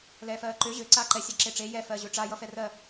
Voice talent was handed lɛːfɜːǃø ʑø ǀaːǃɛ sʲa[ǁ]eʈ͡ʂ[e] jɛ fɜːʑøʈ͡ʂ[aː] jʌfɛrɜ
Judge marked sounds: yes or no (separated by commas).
yes, yes, no